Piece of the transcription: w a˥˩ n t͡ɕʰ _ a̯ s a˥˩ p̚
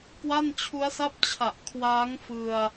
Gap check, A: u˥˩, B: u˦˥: B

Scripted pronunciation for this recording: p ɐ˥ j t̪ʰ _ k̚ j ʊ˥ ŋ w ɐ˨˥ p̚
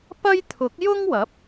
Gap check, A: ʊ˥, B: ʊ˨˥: B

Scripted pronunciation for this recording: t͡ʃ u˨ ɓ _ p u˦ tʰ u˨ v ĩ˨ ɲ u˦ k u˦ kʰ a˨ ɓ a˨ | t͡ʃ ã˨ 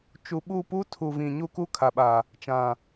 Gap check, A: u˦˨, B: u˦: A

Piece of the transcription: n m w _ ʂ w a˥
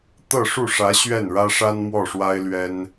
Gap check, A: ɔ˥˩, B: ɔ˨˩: A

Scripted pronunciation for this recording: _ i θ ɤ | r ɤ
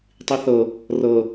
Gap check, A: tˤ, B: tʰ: A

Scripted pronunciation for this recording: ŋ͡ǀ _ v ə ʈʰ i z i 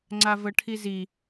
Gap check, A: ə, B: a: B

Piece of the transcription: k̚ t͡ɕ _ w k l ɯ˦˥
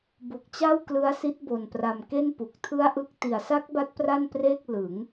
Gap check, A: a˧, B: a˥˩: B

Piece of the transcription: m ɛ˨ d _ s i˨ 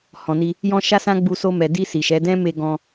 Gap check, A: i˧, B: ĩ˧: A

